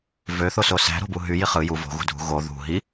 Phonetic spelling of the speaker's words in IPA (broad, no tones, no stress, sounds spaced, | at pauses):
v ø θ o s o s æ̤ ɾ o̤ b u ɦ y j i χ ɯ j u v o̤ ɣ ṳ dʱ ṳ ɣ o ð ṳ ɦ i